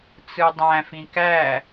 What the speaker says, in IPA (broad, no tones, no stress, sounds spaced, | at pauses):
t͡s ɯ dˤ æ̃ f ĩ k æ